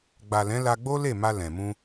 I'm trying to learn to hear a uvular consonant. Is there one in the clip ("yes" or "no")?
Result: no